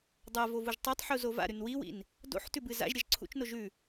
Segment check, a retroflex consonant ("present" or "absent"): absent